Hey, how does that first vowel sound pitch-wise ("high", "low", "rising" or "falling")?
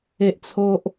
high